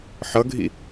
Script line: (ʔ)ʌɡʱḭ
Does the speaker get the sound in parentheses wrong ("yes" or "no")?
yes